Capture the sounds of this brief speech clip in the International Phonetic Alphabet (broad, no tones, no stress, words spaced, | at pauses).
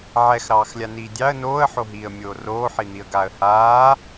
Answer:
ʕɛxɾɑːxlʲaniː dʲɑə̯ noːə̯ħoɦiːə̯mʲoː roːħin̪iə̯ɡaːə̯ haː